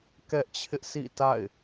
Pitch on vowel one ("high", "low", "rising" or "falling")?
high